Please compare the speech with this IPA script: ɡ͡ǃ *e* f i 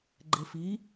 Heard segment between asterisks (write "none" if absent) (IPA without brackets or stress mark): e